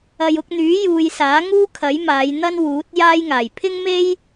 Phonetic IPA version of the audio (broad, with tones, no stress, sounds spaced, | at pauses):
ɐ˨ j ʊ˧ k̚ n̪ yː˨˥ j uː˨ j s aː˨˥ ŋ uː˥ kʰ ɐ˨˥ j m aː˨˧ j n̪ ɐ˥ n w uː˨˥ t̚ j aː˥ j ŋ aː˨˩ j pʰ ɪ˥ ŋ m e˥ j